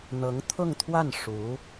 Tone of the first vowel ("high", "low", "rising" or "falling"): rising